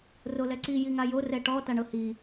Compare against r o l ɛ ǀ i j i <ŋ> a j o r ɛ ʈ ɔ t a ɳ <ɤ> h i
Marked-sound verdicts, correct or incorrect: correct, correct

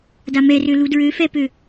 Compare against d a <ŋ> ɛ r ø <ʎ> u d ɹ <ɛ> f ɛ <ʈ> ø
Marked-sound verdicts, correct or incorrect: incorrect: m, incorrect: l, incorrect: ø, incorrect: p

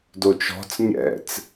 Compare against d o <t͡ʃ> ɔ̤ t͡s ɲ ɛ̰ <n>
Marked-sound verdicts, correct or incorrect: correct, incorrect: t͡s

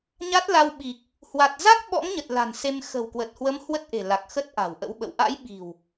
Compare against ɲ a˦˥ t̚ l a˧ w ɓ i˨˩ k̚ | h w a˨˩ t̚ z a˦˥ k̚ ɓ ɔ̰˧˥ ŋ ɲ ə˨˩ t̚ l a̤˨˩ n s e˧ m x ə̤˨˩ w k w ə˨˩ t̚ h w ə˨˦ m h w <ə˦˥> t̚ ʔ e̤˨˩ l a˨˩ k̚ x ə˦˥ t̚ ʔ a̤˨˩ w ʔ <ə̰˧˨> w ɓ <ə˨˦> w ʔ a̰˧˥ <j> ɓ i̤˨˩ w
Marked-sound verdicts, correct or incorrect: correct, incorrect: ə̰˧˥, incorrect: ə̰˧˨, correct

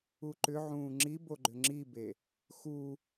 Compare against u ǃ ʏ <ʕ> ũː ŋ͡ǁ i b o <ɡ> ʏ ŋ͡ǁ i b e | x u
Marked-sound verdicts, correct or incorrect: correct, incorrect: ɡ͡ǃ

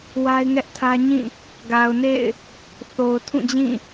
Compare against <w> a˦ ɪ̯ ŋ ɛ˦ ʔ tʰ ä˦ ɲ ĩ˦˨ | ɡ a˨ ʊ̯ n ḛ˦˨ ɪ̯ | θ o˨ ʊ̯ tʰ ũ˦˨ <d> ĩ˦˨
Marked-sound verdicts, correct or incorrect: correct, incorrect: d͡ʑ

